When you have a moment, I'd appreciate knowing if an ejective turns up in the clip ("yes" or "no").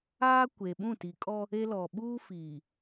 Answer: yes